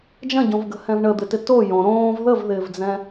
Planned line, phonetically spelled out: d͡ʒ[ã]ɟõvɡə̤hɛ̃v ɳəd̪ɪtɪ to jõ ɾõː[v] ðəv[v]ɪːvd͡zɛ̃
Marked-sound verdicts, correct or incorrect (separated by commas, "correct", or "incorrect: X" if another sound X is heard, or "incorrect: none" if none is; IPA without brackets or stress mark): incorrect: ɐ̃, correct, incorrect: ð